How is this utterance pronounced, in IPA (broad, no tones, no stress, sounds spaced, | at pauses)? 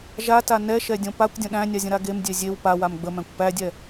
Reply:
ʒ a t a n ɛ ʃ ɛ dʲ õ p a kʷ dʲ ə̃ ɗ æ̃ nʲ a zʲ ə̃ ɾ a ɡ e m dʲ e zʲ e w p a w a m ɡ͡b ə m æ̃ kʷ p æ dʲ ɛ